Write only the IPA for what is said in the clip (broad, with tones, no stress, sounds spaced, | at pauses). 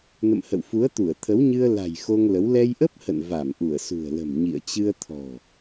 n ə̰˧˨ m h ə̰˧˨ w f u˨˦ ə̯ t̪ u˧˩ ə̯ t̪ʰ ə˨˦ w ɲ ɨ˧ ə̯ l a̤˨˩ j x o˧ ŋ l ə˨˦ w l ɛ˧ j ʔ ə˦˥ p̚ h ə̰˧˨ n v a˧˩ m ʔ u˧˩ ə̯ s ṳ˨˩ ə̯ l ə̤˨˩ m ɲ ḭ˧˨ ə̯ t͡ɕ ɨ˧ ə̯ t̪ʰ ɔ̤˨˩